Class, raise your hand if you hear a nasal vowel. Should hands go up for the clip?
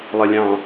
yes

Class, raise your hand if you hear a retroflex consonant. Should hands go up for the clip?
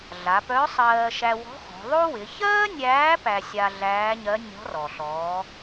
no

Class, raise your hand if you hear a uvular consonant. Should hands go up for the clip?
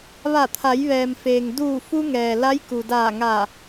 no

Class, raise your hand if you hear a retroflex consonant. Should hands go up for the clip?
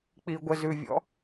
no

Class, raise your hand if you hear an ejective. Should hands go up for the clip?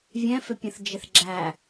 no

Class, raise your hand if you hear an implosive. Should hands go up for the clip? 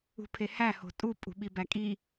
yes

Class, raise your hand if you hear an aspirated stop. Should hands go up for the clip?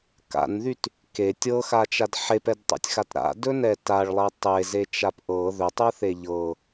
no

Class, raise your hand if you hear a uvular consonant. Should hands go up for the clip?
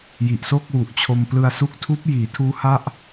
no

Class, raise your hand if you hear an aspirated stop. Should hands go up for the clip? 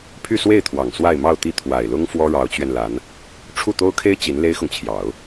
yes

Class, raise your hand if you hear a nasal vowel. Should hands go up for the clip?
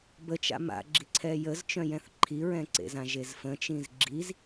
yes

